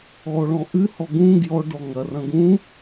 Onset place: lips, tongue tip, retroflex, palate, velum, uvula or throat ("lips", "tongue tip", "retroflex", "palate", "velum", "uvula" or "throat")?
retroflex